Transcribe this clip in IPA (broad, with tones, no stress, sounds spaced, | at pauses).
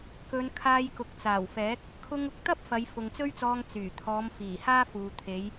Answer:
k ɵ˨˧ n kʰ aː˧ j k ʊ˨ k̚ t͡s aː˨˩ w f ɛː˨˥ k̚ | kʰ ʊ˧ ŋ ʊ˧ k̚ t̪ ɐ˥ p̚ f ɐ˨˧ j f ʊ˨ ŋ t͡s ɵ˥ ɥ t͡s ɔː˧ ŋ t͡s yː˨˩ t̪ʰ ɔː˨˧ m f iː˨˩ h aː˥ f uː˨ t̪ʰ e˨˧ j